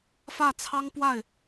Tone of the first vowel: falling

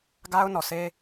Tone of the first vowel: high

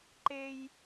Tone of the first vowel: high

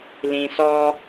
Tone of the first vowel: low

